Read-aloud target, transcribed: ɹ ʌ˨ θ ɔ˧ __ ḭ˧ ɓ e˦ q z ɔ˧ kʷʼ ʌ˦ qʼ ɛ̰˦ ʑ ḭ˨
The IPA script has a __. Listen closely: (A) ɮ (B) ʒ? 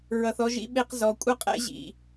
B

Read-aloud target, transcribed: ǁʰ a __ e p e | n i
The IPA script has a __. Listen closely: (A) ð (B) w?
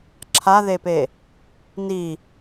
A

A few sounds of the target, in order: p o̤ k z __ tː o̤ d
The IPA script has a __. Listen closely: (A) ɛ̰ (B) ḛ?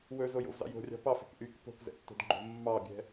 A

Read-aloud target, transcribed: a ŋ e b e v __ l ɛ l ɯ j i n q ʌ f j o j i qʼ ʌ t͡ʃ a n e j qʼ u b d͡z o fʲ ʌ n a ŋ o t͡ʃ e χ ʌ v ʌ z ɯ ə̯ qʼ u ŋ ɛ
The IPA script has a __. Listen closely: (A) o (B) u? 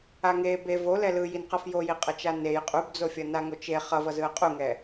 A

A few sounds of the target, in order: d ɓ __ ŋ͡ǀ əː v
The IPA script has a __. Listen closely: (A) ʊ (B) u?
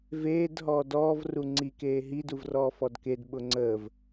A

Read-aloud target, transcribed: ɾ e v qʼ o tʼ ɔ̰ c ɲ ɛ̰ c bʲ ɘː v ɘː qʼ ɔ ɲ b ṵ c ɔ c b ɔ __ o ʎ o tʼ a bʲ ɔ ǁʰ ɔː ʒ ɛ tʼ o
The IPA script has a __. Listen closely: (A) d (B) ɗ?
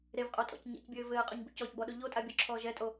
B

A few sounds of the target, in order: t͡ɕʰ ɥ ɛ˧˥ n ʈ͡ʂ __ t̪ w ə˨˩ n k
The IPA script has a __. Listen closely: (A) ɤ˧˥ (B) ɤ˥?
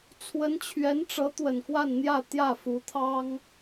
A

